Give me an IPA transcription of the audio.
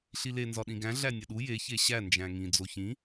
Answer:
ɬile nzɒɗĩɡæ̃ ɮænʲɒɗu je çeɕæ nd͡ʒæ̃ŋĩ d͡zoçĩ

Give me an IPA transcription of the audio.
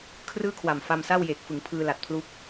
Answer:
kʰrɯː˥˩kʰwa˨˩m fa˧msa˥˩wjeː˨˩k̚ fɯ˩˦ŋpʰɯː˧la˨˩t̚pʰlu˦˥k̚

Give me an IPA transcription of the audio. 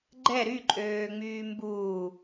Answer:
ɡ͡ǃɛ ɾyǃʼøːŋ͡myː mbuː

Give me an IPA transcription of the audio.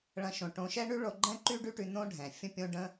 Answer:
ɭɐ̃˦ʃõ˧ ʈõ˧ʃɛ˦ɳy˦ɭo˧ ɡ͡ǃɛ̃˦ǃy˦ɖy˦ʈy˧ nõ˦ɖʱɛ̃˨ fʲə̃˦pʲõ˦ ɖə̃˦

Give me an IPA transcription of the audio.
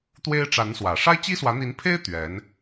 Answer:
t̪we˥ɪ̯ʈ͡ʂa˧˥n swä˨˩ ʂa˥ɪ̯t͡ɕi˥swä˧˥ n̪i˧˥npʰe˥ɪ̯ t̪ɥɛ˧˥n

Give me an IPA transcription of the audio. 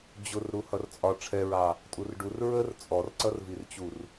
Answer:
d͡ʑʊr ɾuhʌrt͡sʼɒ ʈ͡ʂʰɛɹɑ | tʼurɖur ɹər t͡sʼɔrǀʌrvirt͡ɕur

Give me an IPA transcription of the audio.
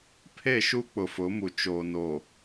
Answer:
pʰe˦˨ʃu˦ k͡pʊ˨fʊ˨˦mu˨ t͡ʃoː˨no˨

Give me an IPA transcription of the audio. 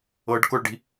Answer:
ɤɖ kʊɭɖi̤

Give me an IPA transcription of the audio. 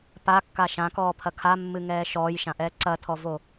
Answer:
pakːa ʃãkɔːpʰɐ kʰamːɨŋɛː ʃɔːjʃãʔɛː ǀɐtʰɔvo

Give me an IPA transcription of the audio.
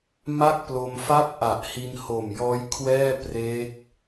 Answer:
ma˥˩k̚plo˧mfa˥˩p̚ ʔa˨˩ʔhi˧nho˨˩mjɔː˦˥j kʰwɛː˥˩ pre˦˥k̚

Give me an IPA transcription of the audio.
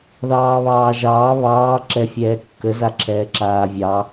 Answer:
ðɑːβɑːʒɑː βɑː ǁɛfʲɛːkːə zaǁʰɛːǁaːvʲɑ

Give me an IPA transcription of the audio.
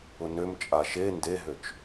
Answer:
ʊnøm t͡ʃʼaʃe ndeɦøt͡ʃ

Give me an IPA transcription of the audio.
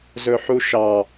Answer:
zɵħuʃɑ

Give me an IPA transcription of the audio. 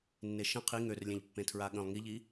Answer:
nːeʃə̃ qʰi ŋørlʲẽʎpːẽ tʰɹaɠə̃lˠ ŋiʎi

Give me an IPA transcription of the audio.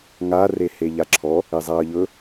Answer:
ŋa reheʎaǁʰɔ | ɪzˤaə̯ʎɵ

